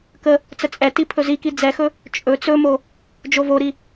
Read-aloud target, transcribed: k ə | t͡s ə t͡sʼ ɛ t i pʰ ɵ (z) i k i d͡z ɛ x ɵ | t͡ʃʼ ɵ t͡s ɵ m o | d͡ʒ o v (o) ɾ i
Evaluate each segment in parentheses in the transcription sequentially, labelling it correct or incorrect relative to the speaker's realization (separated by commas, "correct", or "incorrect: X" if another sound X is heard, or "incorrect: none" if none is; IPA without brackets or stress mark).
correct, correct